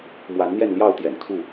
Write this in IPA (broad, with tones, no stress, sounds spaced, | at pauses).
m w a˨˦ n n̪ j ɛ˥˨ n l j ɑ˥˨ ʊ̯ t̪ j ɛ̰˨˩ n kʰ u˥˨